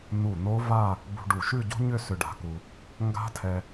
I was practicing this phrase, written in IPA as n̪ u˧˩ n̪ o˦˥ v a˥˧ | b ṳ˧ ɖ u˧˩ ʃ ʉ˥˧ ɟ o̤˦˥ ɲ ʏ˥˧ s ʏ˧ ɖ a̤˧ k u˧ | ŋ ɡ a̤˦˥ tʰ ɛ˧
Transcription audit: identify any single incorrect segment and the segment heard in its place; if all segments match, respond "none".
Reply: none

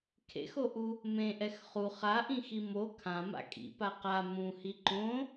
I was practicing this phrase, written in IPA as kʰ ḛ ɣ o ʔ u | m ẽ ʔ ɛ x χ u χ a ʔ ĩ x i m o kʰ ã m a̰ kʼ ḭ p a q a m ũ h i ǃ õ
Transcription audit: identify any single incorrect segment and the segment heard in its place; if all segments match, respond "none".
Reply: ɣ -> x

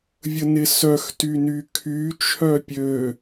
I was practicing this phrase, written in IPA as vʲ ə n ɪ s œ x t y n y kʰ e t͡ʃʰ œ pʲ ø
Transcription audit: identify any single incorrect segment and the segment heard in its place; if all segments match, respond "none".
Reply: e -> y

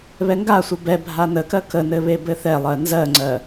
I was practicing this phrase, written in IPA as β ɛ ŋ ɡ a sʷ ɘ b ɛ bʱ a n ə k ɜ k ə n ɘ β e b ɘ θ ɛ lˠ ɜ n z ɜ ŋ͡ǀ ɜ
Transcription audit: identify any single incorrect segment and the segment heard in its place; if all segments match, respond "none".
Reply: none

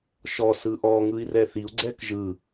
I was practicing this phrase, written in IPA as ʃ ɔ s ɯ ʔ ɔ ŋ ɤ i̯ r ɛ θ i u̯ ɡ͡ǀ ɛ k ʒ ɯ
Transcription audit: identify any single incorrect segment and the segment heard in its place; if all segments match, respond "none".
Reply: ɤ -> ɯ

